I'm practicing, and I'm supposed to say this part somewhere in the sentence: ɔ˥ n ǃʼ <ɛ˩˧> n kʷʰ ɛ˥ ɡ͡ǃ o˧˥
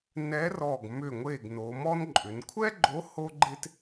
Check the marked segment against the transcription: incorrect: ʏ˩˧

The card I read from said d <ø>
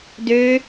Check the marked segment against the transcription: correct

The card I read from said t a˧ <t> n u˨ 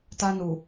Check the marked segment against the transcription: incorrect: none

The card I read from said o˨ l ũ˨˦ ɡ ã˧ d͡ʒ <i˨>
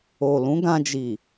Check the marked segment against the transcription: correct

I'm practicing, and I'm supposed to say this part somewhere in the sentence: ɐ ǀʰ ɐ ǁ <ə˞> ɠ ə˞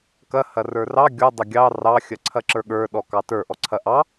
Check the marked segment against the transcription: correct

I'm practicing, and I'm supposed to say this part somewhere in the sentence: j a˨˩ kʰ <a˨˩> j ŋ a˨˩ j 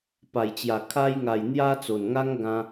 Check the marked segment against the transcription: incorrect: a˧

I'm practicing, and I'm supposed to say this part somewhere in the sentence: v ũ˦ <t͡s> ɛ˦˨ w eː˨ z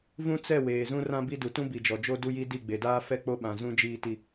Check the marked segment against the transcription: correct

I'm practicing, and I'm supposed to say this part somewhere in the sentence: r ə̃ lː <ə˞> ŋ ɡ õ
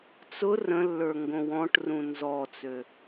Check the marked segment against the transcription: correct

